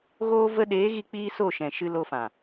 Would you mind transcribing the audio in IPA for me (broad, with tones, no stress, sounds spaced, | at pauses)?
ɣ oː˦ v ə˦ ɗ eː˨˦ ɣ i˧ k͡p iː˧ s o˦˨ ʃ ɛ̃˨ ʃ ɨ˧ l o˧ f ã˨